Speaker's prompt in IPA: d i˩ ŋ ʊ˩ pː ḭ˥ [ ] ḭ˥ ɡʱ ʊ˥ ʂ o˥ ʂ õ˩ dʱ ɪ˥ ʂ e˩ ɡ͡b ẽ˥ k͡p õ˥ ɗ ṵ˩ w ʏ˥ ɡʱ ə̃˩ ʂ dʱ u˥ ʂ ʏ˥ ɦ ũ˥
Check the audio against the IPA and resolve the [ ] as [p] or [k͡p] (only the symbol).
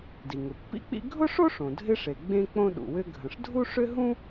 k͡p